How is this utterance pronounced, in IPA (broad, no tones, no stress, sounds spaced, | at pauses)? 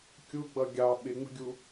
kʲ u ɡ͡b ʌ ɡʲ ɑ ɓ ɪ ŋ͡m ə̤ ɡʲ u